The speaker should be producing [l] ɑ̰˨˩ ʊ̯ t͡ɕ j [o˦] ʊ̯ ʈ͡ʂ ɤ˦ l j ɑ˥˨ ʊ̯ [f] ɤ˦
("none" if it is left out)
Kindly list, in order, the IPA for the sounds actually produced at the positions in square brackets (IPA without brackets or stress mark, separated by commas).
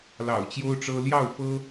l, o˦, f